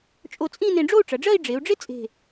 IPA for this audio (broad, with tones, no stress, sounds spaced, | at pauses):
t͡ʃʼ o˧ t͡sʼ ĩ˥˧ n ẽ˧ ɖ͡ʐ o˥˧ u̯ ʈ͡ʂ ɐ˩˧ ɖ͡ʐ ɜ˥˧ i̯ ɖ͡ʐ e˩˧ u̯ ɖ͡ʐ ɪ˥ t͡sʼ e̤˧˩